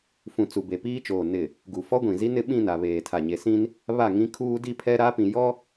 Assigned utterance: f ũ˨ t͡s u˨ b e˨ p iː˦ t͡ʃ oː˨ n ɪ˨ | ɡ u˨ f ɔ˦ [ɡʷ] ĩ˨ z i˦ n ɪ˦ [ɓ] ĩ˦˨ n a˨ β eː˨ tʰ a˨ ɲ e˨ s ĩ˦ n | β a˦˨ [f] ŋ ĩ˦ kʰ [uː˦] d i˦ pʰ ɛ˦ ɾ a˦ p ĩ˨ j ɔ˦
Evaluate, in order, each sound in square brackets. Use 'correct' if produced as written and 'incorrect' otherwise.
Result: correct, correct, incorrect: none, correct

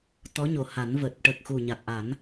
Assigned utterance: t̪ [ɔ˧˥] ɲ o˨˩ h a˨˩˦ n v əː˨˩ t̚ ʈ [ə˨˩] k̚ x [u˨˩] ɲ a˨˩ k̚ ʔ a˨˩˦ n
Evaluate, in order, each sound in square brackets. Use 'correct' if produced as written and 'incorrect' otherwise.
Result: correct, correct, correct

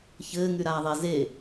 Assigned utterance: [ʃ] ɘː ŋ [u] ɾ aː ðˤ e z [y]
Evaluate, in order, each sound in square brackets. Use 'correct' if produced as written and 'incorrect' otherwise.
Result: incorrect: ç, incorrect: y, incorrect: e

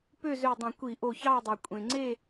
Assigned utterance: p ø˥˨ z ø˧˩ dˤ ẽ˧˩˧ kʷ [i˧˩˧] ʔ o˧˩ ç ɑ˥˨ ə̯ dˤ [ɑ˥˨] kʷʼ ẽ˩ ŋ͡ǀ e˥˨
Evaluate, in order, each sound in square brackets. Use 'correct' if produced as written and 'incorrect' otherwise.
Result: correct, incorrect: ɑ˩

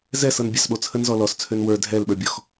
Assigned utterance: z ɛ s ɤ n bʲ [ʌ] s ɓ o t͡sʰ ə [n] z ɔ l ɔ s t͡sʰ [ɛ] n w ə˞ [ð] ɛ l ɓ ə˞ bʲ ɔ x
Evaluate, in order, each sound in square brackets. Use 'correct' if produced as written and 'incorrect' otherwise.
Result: incorrect: ɑ, correct, incorrect: ø, incorrect: dʱ

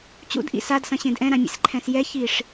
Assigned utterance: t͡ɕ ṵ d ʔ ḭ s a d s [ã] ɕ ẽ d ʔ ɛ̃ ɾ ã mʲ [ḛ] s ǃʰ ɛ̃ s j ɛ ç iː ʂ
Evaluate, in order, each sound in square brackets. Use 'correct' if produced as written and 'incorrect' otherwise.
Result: incorrect: ɐ̃, correct

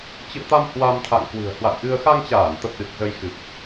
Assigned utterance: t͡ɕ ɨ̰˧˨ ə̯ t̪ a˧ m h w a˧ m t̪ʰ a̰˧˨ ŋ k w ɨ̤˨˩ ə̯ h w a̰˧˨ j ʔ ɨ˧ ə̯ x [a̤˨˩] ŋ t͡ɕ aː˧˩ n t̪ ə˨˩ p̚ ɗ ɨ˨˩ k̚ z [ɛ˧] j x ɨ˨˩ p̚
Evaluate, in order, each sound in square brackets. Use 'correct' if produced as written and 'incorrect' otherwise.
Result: incorrect: a˧, incorrect: ə˧

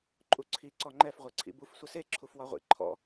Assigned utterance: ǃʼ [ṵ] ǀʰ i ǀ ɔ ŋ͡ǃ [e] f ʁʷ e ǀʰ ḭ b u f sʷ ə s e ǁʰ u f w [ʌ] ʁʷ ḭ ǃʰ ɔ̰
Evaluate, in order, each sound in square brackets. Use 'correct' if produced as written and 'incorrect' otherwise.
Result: incorrect: u, incorrect: ɛ, incorrect: ɒ

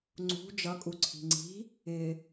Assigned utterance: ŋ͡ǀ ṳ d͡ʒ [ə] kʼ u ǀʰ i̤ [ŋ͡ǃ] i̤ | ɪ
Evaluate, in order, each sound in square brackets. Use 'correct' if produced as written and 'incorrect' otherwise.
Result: incorrect: ʌ, incorrect: ŋ͡ǀ

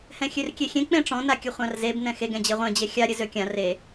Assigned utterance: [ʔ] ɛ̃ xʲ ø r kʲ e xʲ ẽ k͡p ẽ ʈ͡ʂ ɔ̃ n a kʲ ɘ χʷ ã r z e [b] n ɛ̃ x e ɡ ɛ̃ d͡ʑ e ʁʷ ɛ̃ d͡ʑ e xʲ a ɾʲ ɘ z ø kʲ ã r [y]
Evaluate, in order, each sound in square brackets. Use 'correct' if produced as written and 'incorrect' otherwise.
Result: incorrect: h, correct, incorrect: e

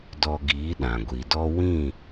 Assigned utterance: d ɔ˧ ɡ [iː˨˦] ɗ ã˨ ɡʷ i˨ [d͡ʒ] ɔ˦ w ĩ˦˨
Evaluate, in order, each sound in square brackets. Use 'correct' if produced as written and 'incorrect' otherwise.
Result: correct, incorrect: d

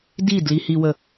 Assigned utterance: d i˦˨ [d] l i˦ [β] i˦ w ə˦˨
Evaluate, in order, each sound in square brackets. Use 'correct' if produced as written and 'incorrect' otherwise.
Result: correct, incorrect: h

